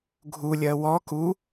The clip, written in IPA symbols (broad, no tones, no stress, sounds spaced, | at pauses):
ɡʱ u lʲ ɜ w ɔ k u